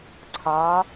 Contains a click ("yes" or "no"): yes